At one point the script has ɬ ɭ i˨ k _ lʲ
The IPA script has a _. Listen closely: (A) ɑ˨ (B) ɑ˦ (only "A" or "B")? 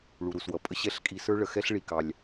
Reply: A